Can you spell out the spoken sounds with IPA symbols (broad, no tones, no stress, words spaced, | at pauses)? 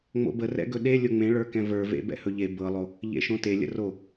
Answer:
ŋ͡mo̰bə rɛ̰ɡɵɗe lʲʊŋ͡mẽɭə˞ kɛ̃və˞vḛ bɛ̰hɵʎe bɤlˠo | ʎḛʃõte lʲə̰ro